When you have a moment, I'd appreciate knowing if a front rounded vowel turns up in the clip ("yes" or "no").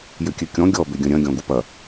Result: yes